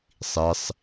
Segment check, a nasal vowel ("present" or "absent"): absent